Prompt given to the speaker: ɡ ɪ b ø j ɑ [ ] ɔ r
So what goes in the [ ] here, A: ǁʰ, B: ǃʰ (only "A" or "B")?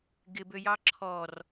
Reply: A